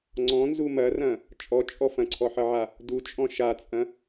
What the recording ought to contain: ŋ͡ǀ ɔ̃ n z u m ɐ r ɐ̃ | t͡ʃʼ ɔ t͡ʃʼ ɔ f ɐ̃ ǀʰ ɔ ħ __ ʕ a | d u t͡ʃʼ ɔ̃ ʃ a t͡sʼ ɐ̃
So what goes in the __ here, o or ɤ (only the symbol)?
ɤ